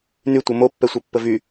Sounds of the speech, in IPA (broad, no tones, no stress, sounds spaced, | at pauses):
n y tʷ ɤ m o pː ɛ sʷ ɤ pː ə v y